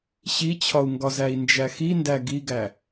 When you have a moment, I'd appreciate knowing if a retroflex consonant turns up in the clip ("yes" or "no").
no